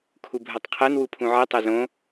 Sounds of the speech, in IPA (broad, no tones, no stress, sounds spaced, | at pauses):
kʰ u bʱ ɜ tˤ qʰ ɜ n w u pʰ ũ ʕ e tˤ e z õ